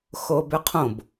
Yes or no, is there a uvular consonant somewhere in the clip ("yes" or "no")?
yes